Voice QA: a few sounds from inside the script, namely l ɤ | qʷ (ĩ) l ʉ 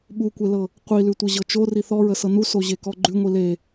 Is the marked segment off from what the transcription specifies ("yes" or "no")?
yes